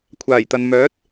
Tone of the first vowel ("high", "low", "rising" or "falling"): low